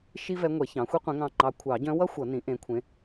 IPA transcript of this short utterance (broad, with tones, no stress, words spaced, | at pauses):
ʃi˥vɛ˧˥ŋʷɛ˨˩˦ çɑ̃˩˥xʷi˥qʷẽ˧˥ŋɑ̃˦˨ ŋ͡ǃɑ˧˥ kʷʰɑ˨˩˦ɟœ̃˧˥wʌ˥ xʷʌ˨˩˦nĩ˩˥ ʔẽ˩˥kʷʰẽ˩˥